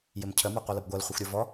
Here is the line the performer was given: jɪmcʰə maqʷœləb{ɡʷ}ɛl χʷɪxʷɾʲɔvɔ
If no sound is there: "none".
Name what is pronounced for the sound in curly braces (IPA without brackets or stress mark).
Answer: ɡʷ